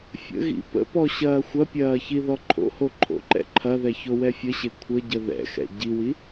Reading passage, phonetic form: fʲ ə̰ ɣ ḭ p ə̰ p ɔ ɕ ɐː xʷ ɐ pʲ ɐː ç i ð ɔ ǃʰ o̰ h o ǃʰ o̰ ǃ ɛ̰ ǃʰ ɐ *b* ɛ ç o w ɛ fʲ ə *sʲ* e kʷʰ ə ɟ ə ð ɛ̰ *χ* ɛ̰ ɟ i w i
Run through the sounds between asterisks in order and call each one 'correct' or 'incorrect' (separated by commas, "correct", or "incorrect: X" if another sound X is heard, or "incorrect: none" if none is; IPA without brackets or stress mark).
incorrect: ð, incorrect: ɕ, incorrect: x